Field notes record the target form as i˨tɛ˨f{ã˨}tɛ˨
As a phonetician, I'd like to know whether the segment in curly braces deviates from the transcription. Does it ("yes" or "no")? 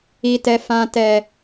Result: no